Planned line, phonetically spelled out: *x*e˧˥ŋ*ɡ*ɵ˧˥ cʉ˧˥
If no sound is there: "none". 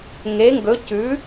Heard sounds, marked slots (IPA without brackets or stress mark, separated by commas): ŋ, ɡ